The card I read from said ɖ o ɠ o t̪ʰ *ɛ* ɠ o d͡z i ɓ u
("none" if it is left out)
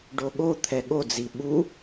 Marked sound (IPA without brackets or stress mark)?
ɛ